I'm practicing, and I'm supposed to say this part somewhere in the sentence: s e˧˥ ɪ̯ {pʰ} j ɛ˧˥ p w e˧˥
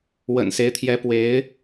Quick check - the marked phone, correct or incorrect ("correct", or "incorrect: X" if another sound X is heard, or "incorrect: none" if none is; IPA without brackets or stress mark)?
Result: incorrect: t̪ʰ